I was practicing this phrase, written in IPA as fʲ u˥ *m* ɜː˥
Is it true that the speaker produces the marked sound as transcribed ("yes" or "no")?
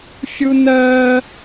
no